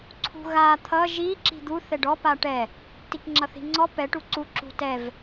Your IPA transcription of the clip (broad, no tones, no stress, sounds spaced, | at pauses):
ǀʰ ṳ ɣ a t̪ʰ ʌ ʒ i ǁ i̤ d̪ u θ ɛ ɖ ɔ p a ʈ ɛ | t i k ŋ͡ǁ ʌ θ i̤ ŋ͡ǀ ɔ p ɛ ʈ u ǀ u ǁ ṳ t ɛ v